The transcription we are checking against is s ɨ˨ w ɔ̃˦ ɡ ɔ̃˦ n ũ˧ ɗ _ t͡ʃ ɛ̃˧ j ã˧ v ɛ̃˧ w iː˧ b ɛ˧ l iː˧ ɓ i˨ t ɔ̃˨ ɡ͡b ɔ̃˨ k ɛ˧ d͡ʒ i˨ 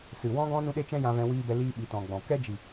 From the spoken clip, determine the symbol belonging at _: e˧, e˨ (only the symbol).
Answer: e˧